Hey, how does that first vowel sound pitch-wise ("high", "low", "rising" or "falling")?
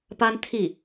high